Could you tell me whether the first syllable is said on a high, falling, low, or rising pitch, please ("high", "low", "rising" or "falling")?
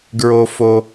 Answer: high